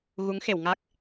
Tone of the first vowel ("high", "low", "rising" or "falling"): rising